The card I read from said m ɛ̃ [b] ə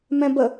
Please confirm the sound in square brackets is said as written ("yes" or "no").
yes